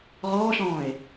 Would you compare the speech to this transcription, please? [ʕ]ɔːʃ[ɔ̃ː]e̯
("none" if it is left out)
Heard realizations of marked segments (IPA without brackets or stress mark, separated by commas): ʁ, ɔ̃ː